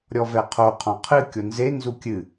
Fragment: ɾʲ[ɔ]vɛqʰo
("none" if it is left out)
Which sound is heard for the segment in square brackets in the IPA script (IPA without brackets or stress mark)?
ɔ